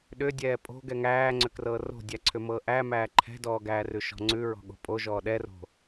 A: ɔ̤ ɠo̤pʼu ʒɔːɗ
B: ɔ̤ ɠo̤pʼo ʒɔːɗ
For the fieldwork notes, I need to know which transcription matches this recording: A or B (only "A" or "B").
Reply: B